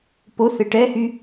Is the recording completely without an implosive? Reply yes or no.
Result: yes